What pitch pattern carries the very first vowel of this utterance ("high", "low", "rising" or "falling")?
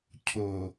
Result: low